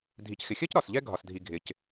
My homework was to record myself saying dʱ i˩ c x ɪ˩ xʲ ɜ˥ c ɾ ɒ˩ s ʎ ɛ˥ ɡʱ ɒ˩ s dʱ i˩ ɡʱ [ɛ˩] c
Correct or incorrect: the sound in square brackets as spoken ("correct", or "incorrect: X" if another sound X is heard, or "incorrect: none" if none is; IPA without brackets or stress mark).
incorrect: ɪ˩